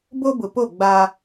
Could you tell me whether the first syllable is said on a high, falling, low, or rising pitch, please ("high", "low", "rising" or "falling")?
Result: high